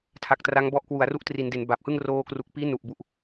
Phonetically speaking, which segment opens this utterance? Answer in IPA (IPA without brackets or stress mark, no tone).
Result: tʰ